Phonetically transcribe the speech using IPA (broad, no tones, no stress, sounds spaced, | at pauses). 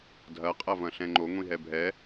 dʱ ɐ qʼ ɐ v ɐ̃ ɬ ɛ̃ ŋ͡ǃ o ŋʷ ĩ ɦ ɛ bʱ ɛ